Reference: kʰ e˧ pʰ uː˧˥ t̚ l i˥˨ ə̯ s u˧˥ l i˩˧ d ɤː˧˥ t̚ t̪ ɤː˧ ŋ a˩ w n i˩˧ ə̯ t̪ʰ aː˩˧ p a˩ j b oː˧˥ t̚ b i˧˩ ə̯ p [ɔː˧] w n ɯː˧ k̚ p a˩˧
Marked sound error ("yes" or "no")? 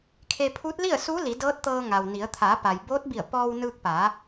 no